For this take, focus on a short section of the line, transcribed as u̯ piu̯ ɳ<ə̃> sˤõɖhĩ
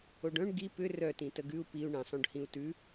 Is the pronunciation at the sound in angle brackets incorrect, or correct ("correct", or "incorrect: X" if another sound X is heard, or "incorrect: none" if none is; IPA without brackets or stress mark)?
correct